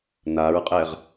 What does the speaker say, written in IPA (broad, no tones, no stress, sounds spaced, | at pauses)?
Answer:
n a ɹ qʼ ɛ ʁ